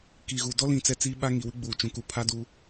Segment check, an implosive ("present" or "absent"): present